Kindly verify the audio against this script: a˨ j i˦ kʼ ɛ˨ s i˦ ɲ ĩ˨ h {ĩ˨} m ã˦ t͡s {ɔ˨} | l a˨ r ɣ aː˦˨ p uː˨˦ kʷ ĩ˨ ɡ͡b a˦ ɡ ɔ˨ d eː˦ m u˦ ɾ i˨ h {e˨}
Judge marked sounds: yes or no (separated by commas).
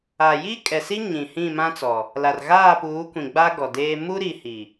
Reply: no, yes, no